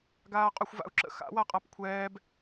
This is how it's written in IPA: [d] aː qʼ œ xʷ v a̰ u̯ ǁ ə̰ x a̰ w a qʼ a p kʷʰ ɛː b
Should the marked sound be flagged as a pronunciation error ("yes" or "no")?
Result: yes